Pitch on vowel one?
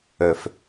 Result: low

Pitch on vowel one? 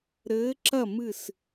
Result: rising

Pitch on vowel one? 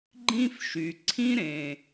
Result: high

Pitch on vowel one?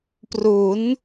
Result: rising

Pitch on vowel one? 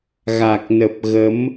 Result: low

